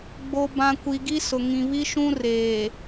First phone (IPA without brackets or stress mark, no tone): ɡ͡b